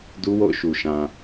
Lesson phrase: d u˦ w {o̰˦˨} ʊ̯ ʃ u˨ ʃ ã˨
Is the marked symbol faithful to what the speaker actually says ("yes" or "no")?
yes